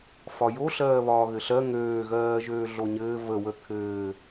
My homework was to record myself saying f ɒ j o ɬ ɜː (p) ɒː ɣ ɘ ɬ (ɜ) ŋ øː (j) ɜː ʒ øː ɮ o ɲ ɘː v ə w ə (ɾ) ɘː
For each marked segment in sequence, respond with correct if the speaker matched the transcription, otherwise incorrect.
incorrect: β, correct, incorrect: ɣ, incorrect: t̪ʰ

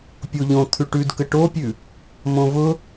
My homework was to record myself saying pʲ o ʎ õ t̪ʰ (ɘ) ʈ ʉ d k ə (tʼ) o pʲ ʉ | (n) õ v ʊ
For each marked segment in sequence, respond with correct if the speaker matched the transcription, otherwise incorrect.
incorrect: ʉ, incorrect: ʈ, incorrect: m

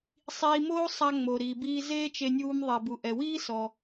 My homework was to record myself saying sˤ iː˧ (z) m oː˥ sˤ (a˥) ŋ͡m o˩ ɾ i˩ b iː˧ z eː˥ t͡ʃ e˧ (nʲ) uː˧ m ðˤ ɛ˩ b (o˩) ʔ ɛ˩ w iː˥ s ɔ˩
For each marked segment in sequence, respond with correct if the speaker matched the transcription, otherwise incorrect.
incorrect: none, incorrect: a˧, correct, incorrect: u˩

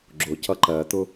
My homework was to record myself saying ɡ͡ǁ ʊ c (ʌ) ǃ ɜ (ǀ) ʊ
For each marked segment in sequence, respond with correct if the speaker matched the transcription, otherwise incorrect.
correct, incorrect: t̪

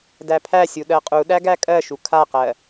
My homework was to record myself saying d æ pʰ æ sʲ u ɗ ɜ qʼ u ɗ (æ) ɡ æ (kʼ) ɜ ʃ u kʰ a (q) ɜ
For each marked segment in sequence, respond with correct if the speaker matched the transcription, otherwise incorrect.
correct, correct, correct

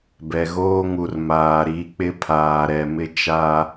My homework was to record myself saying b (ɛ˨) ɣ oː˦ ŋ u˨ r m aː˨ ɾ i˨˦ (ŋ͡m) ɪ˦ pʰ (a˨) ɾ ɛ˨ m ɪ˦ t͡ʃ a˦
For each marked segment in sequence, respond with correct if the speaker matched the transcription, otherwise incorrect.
correct, incorrect: k͡p, incorrect: aː˨

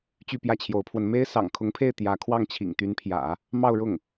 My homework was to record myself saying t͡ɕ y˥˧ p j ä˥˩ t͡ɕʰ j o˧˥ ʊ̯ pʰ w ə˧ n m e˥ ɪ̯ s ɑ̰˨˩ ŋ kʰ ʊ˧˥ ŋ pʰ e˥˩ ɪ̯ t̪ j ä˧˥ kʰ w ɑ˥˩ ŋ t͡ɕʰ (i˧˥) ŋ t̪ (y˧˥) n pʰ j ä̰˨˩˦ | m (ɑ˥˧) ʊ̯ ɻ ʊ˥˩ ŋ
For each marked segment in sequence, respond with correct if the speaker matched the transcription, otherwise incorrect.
incorrect: ḭ˨˩, correct, correct

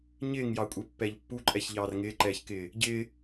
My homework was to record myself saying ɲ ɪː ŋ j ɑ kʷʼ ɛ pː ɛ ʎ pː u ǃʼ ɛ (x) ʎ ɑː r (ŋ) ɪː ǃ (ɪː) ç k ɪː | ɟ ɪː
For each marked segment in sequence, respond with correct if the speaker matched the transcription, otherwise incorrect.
incorrect: ç, correct, incorrect: ɛː

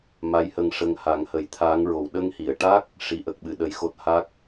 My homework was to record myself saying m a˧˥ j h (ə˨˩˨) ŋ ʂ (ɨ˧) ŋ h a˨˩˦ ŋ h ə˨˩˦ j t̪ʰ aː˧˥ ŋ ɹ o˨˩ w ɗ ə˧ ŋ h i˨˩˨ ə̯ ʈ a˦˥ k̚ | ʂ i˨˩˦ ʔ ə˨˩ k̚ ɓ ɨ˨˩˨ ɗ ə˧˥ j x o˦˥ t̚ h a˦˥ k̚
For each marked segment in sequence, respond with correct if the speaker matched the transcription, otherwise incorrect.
incorrect: ə˧, incorrect: ə˧

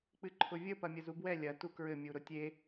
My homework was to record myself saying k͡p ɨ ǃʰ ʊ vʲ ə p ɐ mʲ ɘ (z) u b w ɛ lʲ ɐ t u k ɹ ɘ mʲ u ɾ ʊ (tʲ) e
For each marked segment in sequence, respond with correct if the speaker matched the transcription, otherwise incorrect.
correct, correct

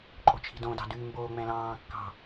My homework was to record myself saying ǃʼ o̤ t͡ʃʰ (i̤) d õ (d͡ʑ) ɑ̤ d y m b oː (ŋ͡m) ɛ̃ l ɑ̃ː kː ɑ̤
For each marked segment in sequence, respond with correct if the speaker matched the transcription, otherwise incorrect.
correct, incorrect: d, correct

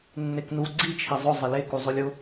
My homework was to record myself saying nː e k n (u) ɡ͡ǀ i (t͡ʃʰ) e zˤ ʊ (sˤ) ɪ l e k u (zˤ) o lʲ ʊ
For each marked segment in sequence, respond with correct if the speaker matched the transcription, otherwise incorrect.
correct, correct, incorrect: zˤ, correct

